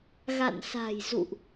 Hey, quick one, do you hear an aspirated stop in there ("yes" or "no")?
no